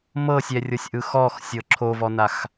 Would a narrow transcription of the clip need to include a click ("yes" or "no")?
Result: yes